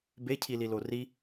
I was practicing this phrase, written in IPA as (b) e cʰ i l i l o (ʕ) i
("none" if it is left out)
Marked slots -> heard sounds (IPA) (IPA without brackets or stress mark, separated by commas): b, r